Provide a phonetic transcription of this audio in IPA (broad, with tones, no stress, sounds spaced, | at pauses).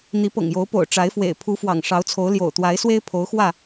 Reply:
n̪ i˨˦ p ɤ̰˨˩ ŋ j o˨˦ ʊ̯ p o̰˨˩ ʊ̯ ʈ͡ʂ a˨˦ ɪ̯ f w ḛ˨˩ ɪ̯ pʰ u˨˦ f w ɑ̰˨˩ ŋ ʂ ɑ˨˦ ʊ̯ t͡sʰ o˨˦ ʊ̯ l j o̰˨˩ ʊ̯ t̪ w a˨˦ ɪ̯ s w e˦ ɪ̯ pʰ o˨˦ ʊ̯ x w ä˥˨